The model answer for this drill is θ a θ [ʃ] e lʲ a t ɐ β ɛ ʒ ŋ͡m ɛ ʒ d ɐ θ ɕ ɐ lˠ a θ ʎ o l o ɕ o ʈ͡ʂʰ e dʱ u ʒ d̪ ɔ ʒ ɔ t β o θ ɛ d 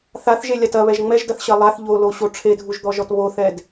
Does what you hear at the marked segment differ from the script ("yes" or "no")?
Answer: yes